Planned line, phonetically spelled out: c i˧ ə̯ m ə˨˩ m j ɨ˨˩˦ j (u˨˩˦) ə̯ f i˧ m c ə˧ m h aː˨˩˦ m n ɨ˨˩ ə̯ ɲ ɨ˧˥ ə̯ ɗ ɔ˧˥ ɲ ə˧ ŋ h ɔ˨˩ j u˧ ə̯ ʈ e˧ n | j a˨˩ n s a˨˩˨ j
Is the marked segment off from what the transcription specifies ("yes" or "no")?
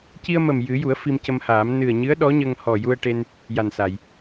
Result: no